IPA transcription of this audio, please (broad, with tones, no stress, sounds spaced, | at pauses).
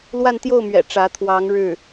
l w a˥˧ n t̪ j o˥˩ ʊ̯ m ɥ ɛ̰˨˩ ʈ͡ʂ ä˧˥ t̪ʰ w ɑ˧˥ ŋ ɻ ɻ̩˥˩